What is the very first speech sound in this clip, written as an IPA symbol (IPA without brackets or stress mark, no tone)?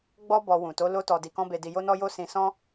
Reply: ɡ͡b